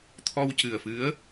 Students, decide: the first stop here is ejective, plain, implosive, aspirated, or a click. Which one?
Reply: aspirated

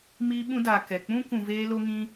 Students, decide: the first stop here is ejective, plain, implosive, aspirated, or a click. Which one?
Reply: implosive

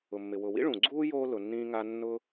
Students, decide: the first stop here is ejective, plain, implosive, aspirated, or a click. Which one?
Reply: click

